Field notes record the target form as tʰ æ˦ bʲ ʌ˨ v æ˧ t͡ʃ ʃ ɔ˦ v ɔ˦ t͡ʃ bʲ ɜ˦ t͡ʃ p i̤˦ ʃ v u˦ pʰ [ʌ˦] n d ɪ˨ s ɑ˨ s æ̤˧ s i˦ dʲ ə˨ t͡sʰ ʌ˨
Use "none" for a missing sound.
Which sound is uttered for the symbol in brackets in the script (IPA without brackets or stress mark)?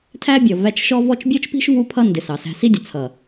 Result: ʌ˦